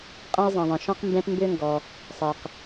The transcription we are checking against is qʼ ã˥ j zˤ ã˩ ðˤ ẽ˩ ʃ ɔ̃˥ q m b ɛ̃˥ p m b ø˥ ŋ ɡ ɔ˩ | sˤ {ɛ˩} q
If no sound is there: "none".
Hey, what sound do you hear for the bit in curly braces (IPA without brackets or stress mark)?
ɛ˩